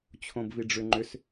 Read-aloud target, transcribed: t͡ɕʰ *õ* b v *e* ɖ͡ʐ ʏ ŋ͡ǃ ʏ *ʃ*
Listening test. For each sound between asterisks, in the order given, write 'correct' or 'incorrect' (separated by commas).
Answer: correct, incorrect, incorrect